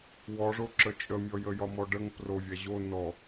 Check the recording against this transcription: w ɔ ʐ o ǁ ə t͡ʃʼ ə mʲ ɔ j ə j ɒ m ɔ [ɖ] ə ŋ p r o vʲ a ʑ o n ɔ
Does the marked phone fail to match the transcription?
no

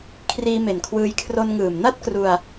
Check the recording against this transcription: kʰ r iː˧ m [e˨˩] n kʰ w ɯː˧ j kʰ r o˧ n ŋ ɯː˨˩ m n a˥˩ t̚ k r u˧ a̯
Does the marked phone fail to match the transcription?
no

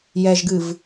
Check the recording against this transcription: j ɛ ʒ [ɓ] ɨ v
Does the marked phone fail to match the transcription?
yes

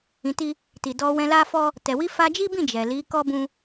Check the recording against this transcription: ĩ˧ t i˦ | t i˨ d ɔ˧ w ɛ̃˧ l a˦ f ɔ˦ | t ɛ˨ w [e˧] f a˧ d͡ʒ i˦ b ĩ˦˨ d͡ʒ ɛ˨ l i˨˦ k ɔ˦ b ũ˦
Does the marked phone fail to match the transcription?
yes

